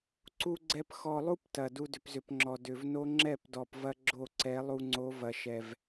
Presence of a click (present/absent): present